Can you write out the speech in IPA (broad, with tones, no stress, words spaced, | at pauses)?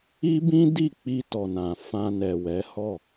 i˦bĩ˦di˦˨ k͡pi˧tɔ˨nã˨ fã˧nɛ˨wɛ˨˦hɔ˦˨